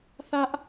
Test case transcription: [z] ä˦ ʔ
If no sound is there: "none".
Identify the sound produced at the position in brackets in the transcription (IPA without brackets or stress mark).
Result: θ